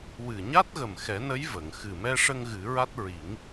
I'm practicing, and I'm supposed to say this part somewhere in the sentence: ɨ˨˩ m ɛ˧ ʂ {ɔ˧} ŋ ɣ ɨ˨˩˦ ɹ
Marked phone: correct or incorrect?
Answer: incorrect